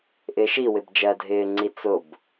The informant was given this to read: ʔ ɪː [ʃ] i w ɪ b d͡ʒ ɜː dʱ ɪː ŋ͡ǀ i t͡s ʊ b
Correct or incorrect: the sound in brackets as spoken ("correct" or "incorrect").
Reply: correct